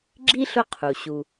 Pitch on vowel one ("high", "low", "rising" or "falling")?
high